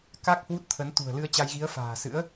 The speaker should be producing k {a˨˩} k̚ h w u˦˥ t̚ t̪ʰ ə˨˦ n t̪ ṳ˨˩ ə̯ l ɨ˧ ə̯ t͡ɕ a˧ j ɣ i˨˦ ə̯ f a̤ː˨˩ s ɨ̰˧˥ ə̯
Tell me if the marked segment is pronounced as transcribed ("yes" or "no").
no